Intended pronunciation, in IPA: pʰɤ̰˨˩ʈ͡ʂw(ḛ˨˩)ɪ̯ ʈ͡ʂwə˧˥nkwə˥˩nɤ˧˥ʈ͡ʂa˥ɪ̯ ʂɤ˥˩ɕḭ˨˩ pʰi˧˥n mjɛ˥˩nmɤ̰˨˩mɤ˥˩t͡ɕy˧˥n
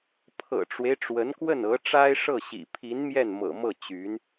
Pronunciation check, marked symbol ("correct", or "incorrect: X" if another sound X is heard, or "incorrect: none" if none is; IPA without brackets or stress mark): incorrect: e˦